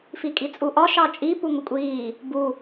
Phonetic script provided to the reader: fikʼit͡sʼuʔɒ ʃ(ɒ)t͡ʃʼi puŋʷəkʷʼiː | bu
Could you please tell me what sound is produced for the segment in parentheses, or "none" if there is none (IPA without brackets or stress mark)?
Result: ɑ